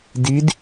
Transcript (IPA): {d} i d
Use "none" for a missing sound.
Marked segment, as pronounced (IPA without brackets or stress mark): d